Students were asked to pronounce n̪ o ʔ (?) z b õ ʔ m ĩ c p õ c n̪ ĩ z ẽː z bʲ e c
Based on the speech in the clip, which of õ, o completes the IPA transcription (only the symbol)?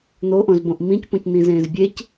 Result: õ